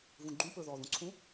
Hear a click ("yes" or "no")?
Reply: yes